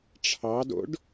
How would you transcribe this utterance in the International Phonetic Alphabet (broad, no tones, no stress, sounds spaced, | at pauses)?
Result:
ʈ͡ʂʰ ɑ d o̰ ɖ